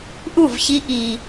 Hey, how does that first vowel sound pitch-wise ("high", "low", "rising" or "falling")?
falling